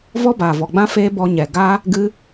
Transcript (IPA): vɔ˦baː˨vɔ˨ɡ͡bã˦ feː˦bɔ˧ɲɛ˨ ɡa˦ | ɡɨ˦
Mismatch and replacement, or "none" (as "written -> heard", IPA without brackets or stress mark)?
none